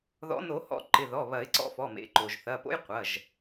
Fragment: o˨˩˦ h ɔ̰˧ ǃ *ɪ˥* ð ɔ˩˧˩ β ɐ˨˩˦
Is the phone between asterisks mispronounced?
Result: yes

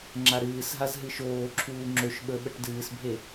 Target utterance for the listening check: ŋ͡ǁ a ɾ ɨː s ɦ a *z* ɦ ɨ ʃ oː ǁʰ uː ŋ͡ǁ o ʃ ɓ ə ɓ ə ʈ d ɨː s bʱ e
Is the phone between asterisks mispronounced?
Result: no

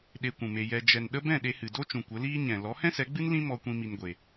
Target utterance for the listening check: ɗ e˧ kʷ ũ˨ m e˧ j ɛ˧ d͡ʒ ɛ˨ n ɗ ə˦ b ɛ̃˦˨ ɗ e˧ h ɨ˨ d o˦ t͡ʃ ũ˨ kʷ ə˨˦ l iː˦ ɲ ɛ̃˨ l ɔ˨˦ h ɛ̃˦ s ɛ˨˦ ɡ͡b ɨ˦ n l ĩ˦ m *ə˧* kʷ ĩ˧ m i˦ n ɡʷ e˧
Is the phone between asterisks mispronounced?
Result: yes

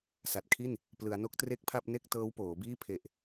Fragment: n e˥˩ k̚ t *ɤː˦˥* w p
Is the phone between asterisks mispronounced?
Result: no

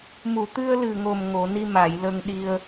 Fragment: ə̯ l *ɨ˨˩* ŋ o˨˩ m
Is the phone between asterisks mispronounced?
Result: no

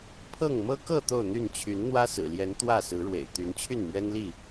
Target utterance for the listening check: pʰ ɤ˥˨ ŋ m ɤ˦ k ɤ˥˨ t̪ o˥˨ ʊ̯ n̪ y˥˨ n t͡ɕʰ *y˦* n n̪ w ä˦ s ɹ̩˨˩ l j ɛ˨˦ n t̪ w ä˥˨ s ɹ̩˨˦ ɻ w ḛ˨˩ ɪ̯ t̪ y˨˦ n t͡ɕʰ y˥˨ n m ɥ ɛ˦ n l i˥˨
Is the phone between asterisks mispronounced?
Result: yes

